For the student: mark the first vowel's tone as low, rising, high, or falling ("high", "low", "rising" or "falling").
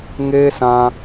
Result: high